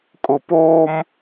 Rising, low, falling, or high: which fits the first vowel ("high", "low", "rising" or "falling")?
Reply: low